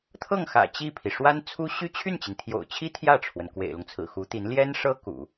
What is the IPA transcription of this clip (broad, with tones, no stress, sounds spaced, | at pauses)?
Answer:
t̪ʰ ɤ˥˩ ŋ x ä̰˨˩ t͡ɕ i˥˩ pʰ i˩ ʂ w a˥ n t͡sʰ u˥ ɕ y˥ t͡ɕʰ y˥˩ n t͡ɕ i˩ n t̪ʰ j o̰˨˩ ʊ̯ t͡ɕʰ i˥ t̪ʰ j ä˥˩ ʈ͡ʂʰ w ə˩ n k w ḛ˨˩ ɪ̯ l ʊ˦ ŋ t͡sʰ ɹ̩˨˩ x u˧˥ t̪ i˧˥ n l j ɛ˥ n ʂ ɤ˥ k ṵ˨˩˦